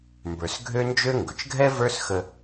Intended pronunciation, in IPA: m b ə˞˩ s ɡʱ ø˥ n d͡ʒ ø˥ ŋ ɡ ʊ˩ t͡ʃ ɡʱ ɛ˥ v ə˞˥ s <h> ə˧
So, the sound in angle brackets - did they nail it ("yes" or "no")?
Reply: no